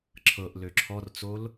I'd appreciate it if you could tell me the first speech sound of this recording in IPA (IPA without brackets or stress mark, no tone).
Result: ǁʰ